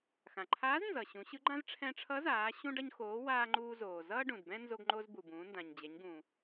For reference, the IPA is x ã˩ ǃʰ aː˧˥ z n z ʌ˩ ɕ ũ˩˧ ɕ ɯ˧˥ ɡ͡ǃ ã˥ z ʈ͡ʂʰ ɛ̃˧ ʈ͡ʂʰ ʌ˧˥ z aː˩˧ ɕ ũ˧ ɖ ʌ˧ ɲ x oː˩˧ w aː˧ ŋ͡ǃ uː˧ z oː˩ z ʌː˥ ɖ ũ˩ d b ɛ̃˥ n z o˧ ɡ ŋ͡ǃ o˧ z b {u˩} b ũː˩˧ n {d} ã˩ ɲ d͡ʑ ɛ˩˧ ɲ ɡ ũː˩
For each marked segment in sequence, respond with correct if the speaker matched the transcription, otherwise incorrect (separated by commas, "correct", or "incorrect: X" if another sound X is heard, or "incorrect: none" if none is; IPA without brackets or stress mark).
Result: correct, correct